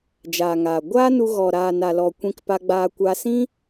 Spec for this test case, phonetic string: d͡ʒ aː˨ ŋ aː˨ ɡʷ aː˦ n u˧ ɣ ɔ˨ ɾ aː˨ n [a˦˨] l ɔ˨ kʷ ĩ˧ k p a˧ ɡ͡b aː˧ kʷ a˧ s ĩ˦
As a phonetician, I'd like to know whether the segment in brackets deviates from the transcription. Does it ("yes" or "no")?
yes